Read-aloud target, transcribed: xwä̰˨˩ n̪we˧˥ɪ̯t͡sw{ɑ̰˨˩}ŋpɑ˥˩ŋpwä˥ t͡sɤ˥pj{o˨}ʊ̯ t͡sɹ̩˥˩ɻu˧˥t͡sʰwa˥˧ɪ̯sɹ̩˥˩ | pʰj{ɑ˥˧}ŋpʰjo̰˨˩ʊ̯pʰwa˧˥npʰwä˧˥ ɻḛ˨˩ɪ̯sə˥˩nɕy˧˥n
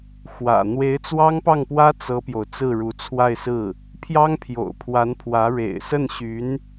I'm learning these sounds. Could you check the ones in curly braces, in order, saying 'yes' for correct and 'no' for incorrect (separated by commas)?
no, yes, no